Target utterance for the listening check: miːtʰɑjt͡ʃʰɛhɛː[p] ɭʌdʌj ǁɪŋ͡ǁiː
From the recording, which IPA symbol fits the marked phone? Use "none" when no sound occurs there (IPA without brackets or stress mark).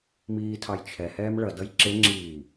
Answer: m